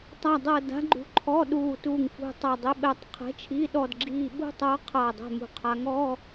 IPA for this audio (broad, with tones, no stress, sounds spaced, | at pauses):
tˤ a˥˧ dˤ ɤ˥˧ d a̤˧˥ ɡ͡ǃ ṳ˧˥ ǃʰ ɔ˧˥˧ ɗ uː˧˩ t uː˧˩ ŋ f ṳ˧˩ tˤ ʌ˧˩ dˤ i˧˥ ɓ ɛ˧˥ tˤ qʰ ɛ̤˧˥ t͡ʃʰ i˧˥˧ ɗ ɔ˥˧ d ɡ͡ǁ iː˥˧ ɓ ṳ˥˧ tˤ ʌː˧˥ qʰ ʌː˧˩ dˤ ɛ̤˥˧ m ṳ˧˩ qʰ a˧˥ ŋ ɔ˧˥˧